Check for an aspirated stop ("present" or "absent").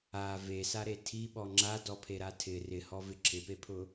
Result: present